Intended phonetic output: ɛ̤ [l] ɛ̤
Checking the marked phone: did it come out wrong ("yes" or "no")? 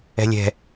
yes